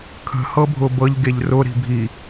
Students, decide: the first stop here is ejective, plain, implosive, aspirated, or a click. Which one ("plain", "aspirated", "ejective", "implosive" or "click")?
aspirated